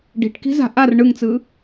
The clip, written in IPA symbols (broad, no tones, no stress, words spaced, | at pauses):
ɖi̤ʈki̤za̤ ʔar ɳɯŋt͡sɯ